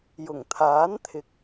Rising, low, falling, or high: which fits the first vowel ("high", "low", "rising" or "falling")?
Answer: low